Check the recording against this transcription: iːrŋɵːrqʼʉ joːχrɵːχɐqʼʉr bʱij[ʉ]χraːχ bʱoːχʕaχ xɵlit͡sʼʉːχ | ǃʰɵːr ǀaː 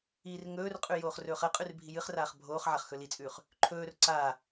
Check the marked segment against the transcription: incorrect: ɨ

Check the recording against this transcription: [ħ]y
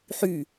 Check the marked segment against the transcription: correct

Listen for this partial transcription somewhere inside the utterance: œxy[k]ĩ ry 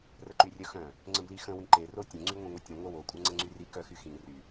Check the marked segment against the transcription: incorrect: x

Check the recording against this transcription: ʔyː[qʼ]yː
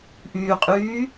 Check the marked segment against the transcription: correct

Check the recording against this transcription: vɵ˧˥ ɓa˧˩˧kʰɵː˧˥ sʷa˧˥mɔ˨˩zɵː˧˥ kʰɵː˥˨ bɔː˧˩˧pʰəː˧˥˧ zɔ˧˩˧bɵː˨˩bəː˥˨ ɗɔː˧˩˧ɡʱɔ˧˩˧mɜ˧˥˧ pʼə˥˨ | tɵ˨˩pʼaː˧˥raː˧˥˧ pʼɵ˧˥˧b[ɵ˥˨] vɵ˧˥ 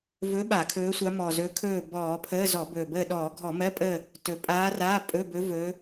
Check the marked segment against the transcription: incorrect: ɵ˧˥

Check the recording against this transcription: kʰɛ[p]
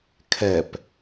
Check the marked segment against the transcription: correct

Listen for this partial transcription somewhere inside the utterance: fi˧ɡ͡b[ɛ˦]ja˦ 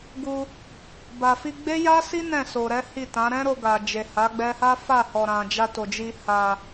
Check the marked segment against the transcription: incorrect: e˦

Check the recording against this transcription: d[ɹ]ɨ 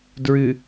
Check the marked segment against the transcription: correct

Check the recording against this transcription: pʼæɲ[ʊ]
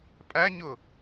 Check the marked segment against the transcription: correct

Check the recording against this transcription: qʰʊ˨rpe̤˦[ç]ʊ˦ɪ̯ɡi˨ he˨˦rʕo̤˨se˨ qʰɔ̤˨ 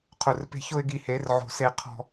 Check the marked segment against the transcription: correct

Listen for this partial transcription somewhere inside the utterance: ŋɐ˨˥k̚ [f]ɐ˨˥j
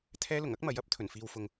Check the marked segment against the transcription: incorrect: m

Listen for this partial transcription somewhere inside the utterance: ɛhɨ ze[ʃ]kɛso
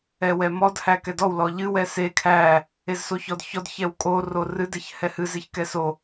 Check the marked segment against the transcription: incorrect: ç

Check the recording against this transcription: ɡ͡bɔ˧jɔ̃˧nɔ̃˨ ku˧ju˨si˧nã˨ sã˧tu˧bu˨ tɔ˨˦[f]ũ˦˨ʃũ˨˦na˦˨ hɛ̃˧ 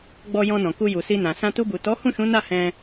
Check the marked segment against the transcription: incorrect: h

